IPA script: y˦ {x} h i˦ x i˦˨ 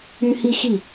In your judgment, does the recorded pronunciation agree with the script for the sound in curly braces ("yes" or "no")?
no